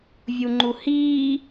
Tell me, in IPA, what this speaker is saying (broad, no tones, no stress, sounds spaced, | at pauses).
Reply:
vʲ u ŋ͡ǃ u h iː